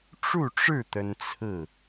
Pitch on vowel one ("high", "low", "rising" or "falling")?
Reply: falling